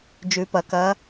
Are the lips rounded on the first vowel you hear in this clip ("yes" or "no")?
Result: yes